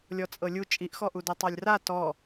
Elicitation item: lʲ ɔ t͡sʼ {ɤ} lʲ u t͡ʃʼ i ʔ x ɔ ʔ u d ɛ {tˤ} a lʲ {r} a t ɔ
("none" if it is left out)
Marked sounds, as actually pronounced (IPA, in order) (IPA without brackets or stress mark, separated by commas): ɤ, tˤ, r